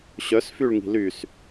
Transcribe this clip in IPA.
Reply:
ɕ œ s f y ɭ ŋ i̤ l y s

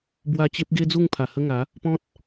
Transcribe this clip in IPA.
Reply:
b w a˧ t͡ɕ e˦ p̚ ɡ e˦ d͡z u˥˧ ŋ pʰ a˨˩ h ə˦ ŋ a˨˦ | p ɔ̃˦ t̚

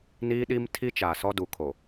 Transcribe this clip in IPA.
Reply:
n iː˦ ɗ i˦ m tʰ i˦ t͡ʃ aː˨ s ɔ˦ d u˨ kʰ o˨

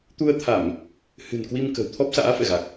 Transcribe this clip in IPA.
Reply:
t̪ u˧ ə̯ t̪ʰ a˧˩˨ m | h ɨ̤˨˩ n k w i˧ m k ə̤˨˩ w t̪ʰ ɔ˦˥ p̚ s a̰ː˧˥ f ɛ̰˧˨ ɣ a˨˩ k̚

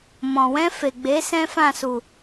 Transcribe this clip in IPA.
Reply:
m ɔ̃˨ w ɛ̃˧ f e˨ ɡ͡b e˨˦ s ɛ̃˦ f ã˦˨ s u˨

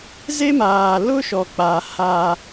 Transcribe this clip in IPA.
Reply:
z e˦ m aː˨ l ʊ˦ ʃ ɔ˨ k͡p a˨ h a˦

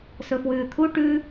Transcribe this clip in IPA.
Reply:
s ɵ f w ʉː t̪ʰ u ʈ ʉ

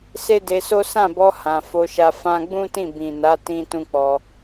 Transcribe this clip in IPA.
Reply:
s e˦ d e˧ s o˦ s ã˦˨ b ɔ˧ h ã˨ f o˧ ʃ a˧ f ã˧ ɡ͡b ũ˦ t ĩ˦˨ b ĩ˨ n a˨˦ t ĩ˧ t ũ˦ k͡p ɔ˧

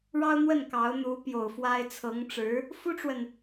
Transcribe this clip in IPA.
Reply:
ɻ ɑ˥ ʊ̯ n̪ w ə˥˩ n k ɑ˧˥ ʊ̯ n̪ u˧˥ p j o˨˩ ʊ̯ f w a˥ ɪ̯ t͡sʰ ɤ˧˥ ŋ ʈ͡ʂ ɻ̩˧˥ | f u˥ ʈ͡ʂ w ə˨ n

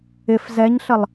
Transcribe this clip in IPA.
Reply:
ɪ f z ɛ ɲ ɬ ə lˠ

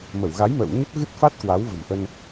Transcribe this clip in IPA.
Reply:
m ə˧˩ w ɣ a˨˦ j m ə̰ː˧˨ w ɲ ə˦˥ p̚ ɣ ɨ˦˥ t̚ f a˦˥ t̚ k w a˨˦ w v ə̤˨˩ m ʔ ə˧ n

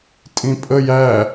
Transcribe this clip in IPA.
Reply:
tʼ ĩ pʼ ə j æ

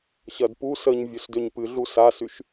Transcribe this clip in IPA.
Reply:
ɕ ɐ d p u s ə ɲ vʲ ø s d ø ɲ p ɨ ɮ u s a s y ʃ

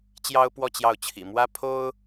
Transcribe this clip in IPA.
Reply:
t͡ɕ j ɑ˥ ʊ̯ p w ɔ˥˧ t͡ɕ j ɑ˥˩ ʊ̯ t͡ɕʰ ḭ˨˩ m w ä˥ pʰ o˥ ʊ̯

